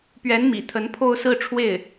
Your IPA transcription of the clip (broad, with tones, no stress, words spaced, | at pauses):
pɥɛ˧˥nmḭ˨˩ t̪ʰə˧˥npʰo˥˧ʊ̯sɹ̩˥˧ʈ͡ʂʰwe˥˩ɪ̯